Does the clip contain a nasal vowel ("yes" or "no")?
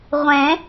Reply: yes